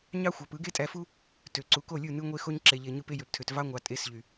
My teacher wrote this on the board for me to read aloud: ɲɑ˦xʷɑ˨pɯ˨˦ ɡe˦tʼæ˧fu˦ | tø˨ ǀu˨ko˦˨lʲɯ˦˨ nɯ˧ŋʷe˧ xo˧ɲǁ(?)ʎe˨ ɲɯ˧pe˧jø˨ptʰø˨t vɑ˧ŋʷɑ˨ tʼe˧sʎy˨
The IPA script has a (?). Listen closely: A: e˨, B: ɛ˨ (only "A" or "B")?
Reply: A